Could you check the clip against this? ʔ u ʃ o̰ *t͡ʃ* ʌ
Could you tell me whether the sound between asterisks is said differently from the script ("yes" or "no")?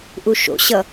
yes